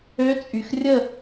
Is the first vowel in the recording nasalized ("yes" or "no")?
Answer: no